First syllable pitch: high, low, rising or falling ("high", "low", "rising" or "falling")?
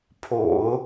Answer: low